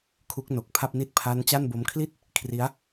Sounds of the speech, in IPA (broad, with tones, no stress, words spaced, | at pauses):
kʰu˦˥k̚no˨˩k̚pʰa˥˩p̚ ni˥˩t̚ pʰa˦˥n t͡ɕa˥˩nbo˦˥m kʰli˥˩t̚ | kʰri˦˥a̯